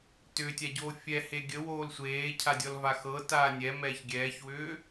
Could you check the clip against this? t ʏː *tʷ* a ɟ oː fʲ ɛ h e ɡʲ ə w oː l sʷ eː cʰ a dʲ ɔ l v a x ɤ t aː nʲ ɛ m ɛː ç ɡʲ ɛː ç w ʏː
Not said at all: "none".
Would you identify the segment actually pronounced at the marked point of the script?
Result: tʲ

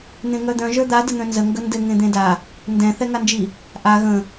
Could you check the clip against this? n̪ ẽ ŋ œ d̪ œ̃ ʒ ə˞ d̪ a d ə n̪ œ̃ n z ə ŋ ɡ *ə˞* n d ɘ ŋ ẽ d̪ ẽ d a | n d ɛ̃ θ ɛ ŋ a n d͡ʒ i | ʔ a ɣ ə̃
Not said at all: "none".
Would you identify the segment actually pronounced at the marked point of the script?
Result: ə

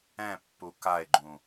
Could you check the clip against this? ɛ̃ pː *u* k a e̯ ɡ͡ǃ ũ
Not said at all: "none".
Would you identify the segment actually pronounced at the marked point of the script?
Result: u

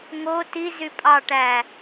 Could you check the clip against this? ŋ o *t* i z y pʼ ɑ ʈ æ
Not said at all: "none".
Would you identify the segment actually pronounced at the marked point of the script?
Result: t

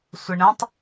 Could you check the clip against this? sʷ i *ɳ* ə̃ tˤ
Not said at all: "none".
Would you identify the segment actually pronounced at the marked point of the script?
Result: ɳ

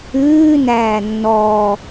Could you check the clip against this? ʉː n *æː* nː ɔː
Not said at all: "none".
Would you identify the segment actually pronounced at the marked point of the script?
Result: æː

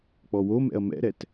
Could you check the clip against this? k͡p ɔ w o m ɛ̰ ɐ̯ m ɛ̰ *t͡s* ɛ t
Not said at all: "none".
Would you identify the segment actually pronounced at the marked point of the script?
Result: ɾ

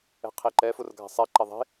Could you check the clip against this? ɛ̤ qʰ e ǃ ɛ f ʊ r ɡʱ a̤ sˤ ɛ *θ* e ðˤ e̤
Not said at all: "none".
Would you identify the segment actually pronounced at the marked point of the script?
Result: ǃ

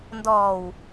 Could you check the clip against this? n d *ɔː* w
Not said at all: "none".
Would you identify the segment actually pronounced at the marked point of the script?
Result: ɔː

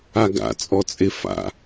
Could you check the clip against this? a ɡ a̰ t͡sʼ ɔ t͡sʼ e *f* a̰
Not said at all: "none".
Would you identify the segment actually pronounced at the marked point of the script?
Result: f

